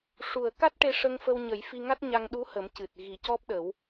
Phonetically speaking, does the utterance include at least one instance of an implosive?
yes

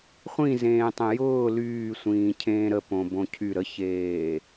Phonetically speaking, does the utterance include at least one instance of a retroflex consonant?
no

